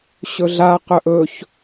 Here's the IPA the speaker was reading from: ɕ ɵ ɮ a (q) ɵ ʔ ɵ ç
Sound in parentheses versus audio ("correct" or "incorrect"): correct